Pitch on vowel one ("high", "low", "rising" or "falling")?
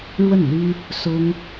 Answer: falling